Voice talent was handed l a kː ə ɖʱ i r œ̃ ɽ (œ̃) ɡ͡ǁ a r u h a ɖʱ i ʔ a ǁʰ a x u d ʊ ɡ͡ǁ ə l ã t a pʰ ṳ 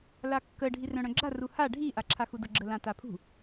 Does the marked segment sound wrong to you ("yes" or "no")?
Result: no